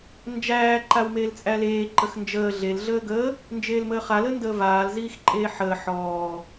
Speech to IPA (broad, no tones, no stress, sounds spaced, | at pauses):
n d͡ʒ æː ǃ a w m eː l t͡sʼ æ l eː ǃ ə x n d͡ʒ əː ɮ e l ɮ əː ɡ əː | n d͡ʒ eː l m əː χ a l ə n d əː v aː l z iː x ǃʼ eː ħ əː ħ ɔː